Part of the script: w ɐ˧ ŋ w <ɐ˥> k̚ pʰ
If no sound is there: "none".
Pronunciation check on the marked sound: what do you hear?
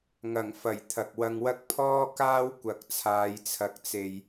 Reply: ɐ˥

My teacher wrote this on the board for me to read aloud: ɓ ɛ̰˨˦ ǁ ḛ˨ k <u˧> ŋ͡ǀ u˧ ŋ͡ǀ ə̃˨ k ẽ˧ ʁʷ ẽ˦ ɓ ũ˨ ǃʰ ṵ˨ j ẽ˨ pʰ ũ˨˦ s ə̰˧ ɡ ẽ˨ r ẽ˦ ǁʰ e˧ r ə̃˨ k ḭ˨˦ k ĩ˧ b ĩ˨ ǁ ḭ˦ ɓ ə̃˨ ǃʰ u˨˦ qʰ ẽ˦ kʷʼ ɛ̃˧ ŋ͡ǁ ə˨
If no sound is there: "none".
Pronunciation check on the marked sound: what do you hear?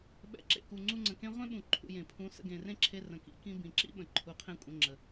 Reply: u˨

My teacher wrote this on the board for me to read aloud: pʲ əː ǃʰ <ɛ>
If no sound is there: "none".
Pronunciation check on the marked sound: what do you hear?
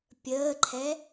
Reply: ɛ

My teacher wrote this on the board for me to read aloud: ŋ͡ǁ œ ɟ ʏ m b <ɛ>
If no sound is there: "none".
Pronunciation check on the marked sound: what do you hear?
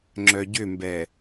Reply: ɛ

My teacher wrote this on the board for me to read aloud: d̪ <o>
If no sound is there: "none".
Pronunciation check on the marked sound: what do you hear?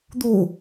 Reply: o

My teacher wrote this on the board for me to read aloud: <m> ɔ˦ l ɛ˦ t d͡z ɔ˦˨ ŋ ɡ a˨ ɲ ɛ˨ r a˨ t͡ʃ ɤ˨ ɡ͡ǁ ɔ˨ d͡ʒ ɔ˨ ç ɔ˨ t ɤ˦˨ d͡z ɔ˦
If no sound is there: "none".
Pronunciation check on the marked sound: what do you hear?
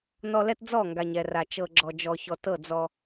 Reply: n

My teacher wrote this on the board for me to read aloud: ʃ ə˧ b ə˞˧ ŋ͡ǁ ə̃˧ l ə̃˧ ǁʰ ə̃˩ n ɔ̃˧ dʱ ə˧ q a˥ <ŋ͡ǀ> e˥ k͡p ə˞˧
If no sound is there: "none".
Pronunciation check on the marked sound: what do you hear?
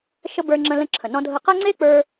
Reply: ŋ͡ǀ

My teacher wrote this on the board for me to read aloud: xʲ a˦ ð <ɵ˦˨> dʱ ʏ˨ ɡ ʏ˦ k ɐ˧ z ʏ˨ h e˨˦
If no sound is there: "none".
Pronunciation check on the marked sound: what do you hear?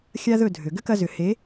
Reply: ɵ˦˨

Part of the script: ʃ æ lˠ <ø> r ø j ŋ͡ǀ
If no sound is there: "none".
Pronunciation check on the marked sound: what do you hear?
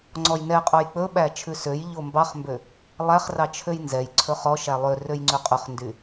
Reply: ø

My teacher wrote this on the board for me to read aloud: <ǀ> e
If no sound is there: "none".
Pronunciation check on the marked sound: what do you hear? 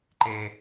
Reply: ǃ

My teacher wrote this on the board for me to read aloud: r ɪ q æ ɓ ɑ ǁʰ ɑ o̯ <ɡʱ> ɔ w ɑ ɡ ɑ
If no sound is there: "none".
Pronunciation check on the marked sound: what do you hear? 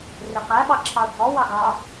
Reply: ɡʱ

